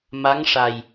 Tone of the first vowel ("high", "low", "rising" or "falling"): rising